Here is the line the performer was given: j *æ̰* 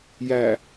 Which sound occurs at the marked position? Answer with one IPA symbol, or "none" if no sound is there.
æ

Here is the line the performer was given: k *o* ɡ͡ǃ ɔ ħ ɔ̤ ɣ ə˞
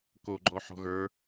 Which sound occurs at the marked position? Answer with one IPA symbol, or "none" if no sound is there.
o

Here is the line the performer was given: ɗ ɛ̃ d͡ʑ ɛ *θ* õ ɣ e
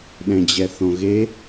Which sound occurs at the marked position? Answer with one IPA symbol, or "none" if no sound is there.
θ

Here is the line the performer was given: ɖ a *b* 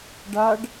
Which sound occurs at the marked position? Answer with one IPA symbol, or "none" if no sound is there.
ɖ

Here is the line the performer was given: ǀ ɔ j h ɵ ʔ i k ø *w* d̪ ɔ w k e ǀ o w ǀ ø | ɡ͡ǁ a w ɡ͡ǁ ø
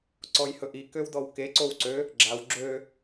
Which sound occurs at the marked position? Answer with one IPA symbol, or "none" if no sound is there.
w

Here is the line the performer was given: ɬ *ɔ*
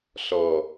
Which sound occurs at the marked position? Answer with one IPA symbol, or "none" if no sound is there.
ɔ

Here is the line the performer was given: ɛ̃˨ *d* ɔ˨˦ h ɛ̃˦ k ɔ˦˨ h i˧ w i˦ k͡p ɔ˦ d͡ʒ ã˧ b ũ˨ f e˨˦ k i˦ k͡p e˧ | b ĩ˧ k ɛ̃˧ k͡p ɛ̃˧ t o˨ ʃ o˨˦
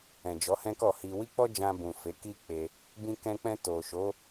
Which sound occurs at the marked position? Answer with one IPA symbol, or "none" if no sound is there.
d͡ʒ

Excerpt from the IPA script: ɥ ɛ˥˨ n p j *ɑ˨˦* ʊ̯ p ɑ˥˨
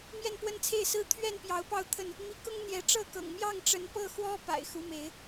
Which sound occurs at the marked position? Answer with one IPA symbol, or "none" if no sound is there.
ɑ˨˦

